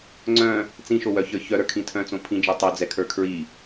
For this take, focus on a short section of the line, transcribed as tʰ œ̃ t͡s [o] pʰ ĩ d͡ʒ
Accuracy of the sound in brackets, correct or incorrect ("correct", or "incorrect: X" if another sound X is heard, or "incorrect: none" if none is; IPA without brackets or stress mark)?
incorrect: õ